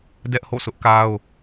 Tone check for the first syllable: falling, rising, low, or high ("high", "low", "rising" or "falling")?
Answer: high